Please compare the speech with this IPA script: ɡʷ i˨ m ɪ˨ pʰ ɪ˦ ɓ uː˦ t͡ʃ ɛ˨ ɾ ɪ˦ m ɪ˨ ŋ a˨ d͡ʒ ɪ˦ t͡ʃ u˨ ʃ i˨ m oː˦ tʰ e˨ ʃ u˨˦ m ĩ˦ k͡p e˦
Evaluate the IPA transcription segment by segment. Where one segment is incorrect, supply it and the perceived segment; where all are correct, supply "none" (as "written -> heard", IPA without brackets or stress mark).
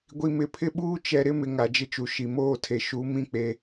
none